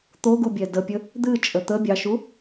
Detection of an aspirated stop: absent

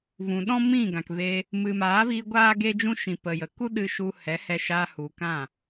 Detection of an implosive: present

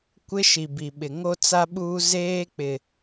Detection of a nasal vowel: absent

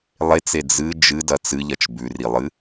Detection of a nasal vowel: absent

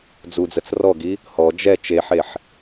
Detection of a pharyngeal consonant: present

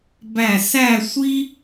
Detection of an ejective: absent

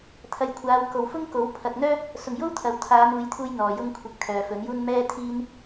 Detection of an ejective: absent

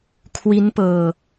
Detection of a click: absent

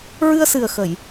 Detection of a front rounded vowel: absent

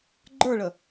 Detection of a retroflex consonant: present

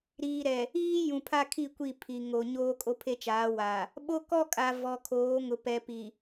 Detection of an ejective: present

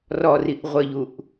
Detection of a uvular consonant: present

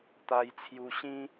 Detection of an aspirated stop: present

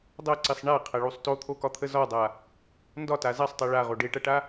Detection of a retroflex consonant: present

